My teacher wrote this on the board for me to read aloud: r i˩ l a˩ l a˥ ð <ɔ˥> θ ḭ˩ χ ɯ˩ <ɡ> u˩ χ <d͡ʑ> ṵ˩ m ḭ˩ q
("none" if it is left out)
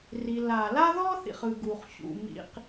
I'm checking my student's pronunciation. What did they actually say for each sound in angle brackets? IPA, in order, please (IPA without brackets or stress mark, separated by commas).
ɔ˥, ɡ, ɕ